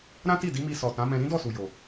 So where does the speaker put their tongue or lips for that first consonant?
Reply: tongue tip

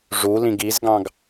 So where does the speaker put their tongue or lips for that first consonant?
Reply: retroflex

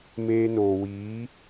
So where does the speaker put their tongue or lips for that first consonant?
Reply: lips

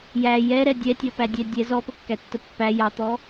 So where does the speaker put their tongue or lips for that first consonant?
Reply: palate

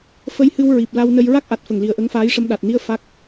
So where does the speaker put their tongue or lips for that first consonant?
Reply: lips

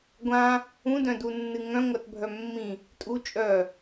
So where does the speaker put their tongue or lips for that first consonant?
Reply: velum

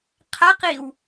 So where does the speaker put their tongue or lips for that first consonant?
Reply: uvula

